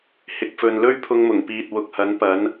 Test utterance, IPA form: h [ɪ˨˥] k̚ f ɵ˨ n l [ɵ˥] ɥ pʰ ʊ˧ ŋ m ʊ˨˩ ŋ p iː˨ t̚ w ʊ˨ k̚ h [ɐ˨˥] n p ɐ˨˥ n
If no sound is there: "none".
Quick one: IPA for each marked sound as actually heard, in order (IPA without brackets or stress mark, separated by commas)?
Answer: ɪ˨, ɵ˥, ɐ˨˥